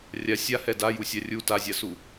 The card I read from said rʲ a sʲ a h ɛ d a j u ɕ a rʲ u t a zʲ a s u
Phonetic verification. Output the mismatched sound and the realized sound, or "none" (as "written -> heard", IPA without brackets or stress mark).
ɕ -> sʲ